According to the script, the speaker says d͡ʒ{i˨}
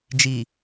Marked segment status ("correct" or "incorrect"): correct